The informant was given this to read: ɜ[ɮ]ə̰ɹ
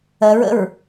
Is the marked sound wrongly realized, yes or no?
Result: yes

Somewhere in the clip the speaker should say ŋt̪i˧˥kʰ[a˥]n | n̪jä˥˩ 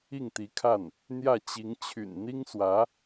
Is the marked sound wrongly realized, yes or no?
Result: yes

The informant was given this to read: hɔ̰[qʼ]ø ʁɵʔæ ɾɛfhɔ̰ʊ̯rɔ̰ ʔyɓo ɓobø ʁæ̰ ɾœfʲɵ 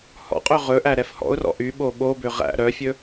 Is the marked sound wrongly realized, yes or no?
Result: no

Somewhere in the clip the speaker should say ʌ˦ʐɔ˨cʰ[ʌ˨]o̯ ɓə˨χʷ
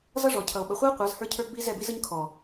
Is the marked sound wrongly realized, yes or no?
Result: no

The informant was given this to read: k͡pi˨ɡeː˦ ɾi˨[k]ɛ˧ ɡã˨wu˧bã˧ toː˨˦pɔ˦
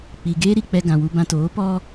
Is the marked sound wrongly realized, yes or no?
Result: yes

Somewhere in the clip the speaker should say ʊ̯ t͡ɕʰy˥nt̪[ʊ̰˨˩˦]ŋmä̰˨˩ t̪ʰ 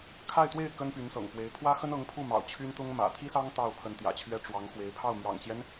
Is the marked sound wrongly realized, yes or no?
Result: yes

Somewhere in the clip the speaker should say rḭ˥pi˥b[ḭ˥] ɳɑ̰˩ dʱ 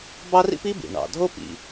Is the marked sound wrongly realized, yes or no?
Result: yes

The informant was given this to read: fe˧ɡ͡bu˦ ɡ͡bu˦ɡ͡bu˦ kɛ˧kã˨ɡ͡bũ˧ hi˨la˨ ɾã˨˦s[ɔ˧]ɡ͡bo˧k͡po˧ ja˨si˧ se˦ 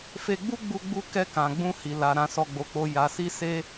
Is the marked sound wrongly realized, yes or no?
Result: no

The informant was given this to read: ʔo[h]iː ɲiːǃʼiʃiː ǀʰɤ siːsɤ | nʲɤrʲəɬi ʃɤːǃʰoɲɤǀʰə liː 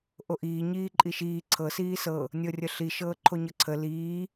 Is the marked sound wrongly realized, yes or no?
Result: yes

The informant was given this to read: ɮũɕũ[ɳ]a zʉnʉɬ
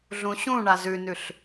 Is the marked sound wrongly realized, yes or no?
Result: no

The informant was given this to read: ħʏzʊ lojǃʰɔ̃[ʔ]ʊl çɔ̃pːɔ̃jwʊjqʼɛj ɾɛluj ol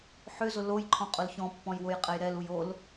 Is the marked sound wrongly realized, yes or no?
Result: yes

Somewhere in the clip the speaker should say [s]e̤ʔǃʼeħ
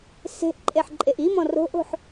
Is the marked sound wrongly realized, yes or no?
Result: no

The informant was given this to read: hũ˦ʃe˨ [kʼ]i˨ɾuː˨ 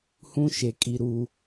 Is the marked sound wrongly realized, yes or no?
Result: no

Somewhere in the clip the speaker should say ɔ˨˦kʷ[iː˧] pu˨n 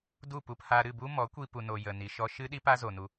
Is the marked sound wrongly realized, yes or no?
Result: yes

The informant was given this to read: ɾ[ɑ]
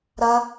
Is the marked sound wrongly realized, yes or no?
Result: yes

